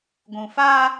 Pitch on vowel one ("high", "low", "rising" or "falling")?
low